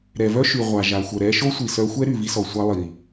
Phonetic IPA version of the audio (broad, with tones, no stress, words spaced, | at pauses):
ɾɛ˩vœ˥ʃy˩ ʁʷa˩ʒa˩ xʷœ˩ɾɛ˧ʃo˥ sʷi˩sœ˧xʷɛ˥ ɾy˩vi˧sɔ˩sʷa˧ lˠi˩